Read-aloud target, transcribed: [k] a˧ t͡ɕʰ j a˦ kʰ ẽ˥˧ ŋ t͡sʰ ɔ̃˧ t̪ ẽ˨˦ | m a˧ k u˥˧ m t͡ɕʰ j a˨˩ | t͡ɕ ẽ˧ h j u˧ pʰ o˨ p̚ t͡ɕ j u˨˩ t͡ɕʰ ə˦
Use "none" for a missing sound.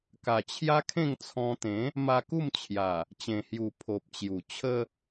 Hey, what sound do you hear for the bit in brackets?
k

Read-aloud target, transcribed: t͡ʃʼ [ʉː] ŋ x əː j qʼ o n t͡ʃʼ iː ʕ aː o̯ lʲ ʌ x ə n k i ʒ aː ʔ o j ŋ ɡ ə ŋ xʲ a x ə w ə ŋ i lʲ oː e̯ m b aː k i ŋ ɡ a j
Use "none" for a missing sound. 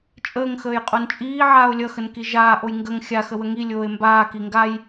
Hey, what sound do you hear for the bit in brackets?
əː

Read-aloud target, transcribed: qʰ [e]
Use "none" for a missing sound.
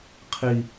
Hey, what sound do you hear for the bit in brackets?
i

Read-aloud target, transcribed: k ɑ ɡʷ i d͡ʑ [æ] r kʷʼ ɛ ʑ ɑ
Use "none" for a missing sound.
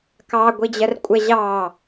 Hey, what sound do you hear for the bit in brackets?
ɜ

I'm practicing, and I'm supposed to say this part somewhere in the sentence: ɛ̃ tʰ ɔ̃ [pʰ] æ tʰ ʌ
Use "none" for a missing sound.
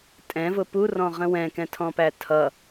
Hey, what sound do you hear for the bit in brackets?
p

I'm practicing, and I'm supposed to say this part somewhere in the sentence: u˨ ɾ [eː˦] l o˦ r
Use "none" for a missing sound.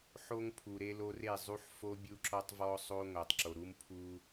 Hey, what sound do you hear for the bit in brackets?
e˦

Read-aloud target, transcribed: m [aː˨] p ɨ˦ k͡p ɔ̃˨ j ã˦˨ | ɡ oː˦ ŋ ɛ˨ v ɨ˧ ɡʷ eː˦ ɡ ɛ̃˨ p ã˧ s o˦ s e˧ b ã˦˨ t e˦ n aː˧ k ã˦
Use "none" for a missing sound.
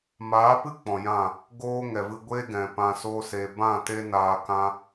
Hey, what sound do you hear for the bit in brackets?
aː˨˦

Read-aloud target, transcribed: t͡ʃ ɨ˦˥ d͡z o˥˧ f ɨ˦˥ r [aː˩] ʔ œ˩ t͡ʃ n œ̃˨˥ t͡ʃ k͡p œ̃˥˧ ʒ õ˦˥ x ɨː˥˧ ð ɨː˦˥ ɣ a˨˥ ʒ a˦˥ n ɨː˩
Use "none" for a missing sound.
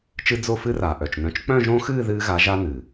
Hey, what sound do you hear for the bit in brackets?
aː˩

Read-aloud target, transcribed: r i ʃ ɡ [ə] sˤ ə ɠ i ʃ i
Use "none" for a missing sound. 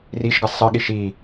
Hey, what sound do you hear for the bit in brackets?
ə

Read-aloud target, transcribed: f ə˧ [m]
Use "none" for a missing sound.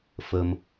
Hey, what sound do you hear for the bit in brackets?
m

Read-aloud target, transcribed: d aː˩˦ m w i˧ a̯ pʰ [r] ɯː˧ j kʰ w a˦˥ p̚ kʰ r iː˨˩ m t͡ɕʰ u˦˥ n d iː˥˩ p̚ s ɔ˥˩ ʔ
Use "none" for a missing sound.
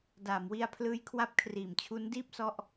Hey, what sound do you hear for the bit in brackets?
l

